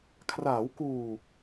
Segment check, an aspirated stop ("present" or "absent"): present